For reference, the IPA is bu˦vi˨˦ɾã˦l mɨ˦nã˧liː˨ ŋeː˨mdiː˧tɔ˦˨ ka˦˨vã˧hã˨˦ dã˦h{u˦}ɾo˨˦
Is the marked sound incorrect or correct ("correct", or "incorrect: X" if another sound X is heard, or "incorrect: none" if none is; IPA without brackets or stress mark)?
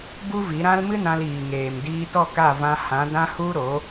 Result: correct